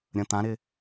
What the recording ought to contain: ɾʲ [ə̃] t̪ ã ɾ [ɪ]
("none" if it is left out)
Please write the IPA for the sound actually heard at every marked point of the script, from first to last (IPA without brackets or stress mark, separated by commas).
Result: ə̃, ɪ